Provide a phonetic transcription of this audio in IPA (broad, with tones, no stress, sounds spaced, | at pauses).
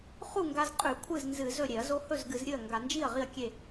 χ u˥˩ ŋ ɡ a˧ z qʼ ʉ˧˩˧ kʷʰ ɨ˥˩ z n z ɨ˧˩˧ z ɵ˥˩ ɾʲ e˧˩˧ ɐ̯ z o˧ h ɵ˥˩ z ɡ ɨ˧˩˧ z ɾʲ ɨ˥˩ ɐ̯ ŋ ɡ a˧˩˧ n d͡ʒ i˥˩ ɐ̯ ʁ i˥˩ ɐ̯ kʲ e˥˩